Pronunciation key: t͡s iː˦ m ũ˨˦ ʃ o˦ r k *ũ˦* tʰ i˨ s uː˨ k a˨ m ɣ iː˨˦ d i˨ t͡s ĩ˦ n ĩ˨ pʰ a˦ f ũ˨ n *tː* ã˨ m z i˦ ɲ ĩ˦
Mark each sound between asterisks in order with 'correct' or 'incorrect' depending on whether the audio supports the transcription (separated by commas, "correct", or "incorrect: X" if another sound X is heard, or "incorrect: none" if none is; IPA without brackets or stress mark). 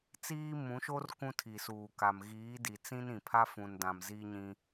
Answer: correct, incorrect: d